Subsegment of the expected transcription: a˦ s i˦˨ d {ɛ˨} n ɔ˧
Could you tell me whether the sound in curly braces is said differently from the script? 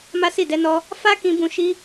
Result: yes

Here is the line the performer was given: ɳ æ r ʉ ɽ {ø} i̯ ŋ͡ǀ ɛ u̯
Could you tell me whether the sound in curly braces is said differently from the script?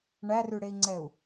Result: yes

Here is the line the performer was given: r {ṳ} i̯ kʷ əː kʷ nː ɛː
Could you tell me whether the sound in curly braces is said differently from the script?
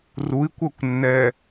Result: yes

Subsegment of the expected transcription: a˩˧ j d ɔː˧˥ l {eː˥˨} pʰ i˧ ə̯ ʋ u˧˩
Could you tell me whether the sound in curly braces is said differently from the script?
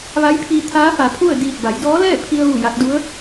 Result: yes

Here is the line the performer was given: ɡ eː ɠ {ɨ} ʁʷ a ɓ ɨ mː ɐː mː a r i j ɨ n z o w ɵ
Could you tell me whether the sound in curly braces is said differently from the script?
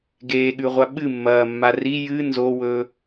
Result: yes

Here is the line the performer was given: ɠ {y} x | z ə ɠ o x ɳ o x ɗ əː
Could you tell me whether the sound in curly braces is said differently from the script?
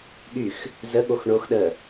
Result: no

